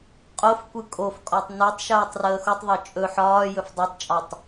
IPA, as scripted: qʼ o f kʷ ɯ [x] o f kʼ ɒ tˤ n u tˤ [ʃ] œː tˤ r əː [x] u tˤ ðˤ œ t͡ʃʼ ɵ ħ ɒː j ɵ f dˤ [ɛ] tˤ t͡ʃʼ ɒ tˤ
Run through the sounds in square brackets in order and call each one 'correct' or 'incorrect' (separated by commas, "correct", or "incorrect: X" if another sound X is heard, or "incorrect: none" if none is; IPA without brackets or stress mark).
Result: incorrect: kʼ, correct, correct, incorrect: œ